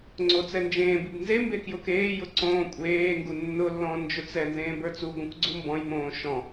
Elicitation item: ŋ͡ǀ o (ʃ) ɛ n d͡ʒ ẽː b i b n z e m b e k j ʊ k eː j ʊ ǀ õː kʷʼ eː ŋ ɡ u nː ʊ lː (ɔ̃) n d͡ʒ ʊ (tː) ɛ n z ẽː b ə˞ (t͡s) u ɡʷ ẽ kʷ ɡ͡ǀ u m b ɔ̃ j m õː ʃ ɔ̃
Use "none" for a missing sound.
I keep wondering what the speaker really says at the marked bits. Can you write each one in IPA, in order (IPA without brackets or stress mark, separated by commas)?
t͡s, ɔ̃, t͡s, t͡s